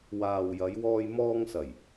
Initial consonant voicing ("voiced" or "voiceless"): voiced